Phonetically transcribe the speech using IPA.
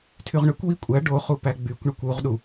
tʰ y ʁ ɳ ø kʷ w i kʷʼ æ ɖ o χ u p æ ɡ͡b y kʷ ɳ ɯ kʷ u ʁ ɗ u

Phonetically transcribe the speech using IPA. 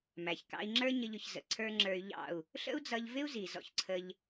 m æ˨ ç k ɑ̰˧ i̯ ŋ͡ǁ ə˞˦ ɲ ə˦ ʎ ʊ˧ ç z ə̰˨ ǀʰ ə˞˦ ŋ͡ǁ ə˞˧ y̯ ʎ ɑ̰˦˨ u̯ | ɬ ə̰˦ u̯ d͡z ʌ˧ ʎ v ɪ˦ u̯ z i˨ z ɔ̰˧ ç ǀʰ ə˧ ʎ

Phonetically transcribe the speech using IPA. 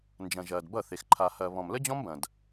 n d͡ʒ ɐ̃˨ ʒ ɐː˨ d b ʌ˦˨ θ e˨ x ǃʰ a˧ h ɐː˧ β ɔ̃˨ m l ə˦ d͡ʑ ɔ̃˦ m b ɐ̃˨ d

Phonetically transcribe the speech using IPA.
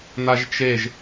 n̪ a ʒ t͡ʃ e ʒ

